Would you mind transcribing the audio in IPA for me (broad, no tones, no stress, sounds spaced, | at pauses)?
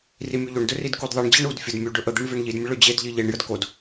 r i mʲ u ʎ o ɳ d ɵ r i d k u d ðˤ i ɳ d͡ʑ e ɳ u d fʲ ə d mʲ u ɖ ɵ ʔ ə d̪ e ɳ v e ɳ ʎ i d mʲ ə ɭ ɵ d͡ʑ e d ʎ i ʎ e ɳ j ə d k o d